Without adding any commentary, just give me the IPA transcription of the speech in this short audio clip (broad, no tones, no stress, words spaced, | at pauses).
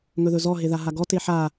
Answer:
ŋɵðɵzɔ ɦeðaɦaɡɔ teħa